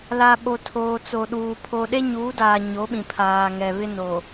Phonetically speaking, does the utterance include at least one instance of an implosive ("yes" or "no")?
yes